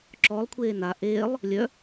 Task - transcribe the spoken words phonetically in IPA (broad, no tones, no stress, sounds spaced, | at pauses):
ǁ ɔ lˠ kʷʰ eː n a ʔ eː lˠ | lʲ œ